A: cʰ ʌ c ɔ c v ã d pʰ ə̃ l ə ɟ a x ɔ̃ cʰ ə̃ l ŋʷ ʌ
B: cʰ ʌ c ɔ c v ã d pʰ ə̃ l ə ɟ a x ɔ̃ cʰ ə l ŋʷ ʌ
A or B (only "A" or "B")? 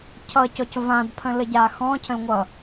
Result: A